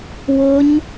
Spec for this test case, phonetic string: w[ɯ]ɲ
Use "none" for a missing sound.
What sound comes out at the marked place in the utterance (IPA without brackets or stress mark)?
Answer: ʊ